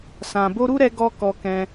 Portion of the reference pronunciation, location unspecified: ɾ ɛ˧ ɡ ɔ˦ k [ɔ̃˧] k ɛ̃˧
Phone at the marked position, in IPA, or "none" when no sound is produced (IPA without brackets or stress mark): ɔ˧